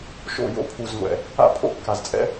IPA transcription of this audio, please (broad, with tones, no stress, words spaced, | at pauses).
ʃo̰˦˨jo̰˦pʰu˨zŋʷɛ̰˨ | a̰˦pʰo̰˦˨kːa˨zt͡sʼɛ̰˦